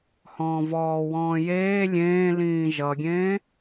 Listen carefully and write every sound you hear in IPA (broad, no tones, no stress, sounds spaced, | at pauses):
h ɔ̃ː v ɔː w ɔ̃ː j eː lʲ ẽː l ĩː ʒ ʌ ɡʲ ẽː